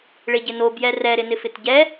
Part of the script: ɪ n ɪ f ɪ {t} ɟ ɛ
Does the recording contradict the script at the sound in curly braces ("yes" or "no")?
no